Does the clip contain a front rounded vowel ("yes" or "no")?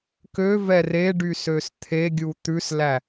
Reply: yes